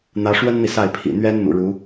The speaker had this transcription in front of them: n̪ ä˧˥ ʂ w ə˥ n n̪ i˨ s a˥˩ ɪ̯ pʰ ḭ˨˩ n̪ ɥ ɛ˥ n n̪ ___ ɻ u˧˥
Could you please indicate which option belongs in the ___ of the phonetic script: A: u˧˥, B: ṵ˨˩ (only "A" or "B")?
B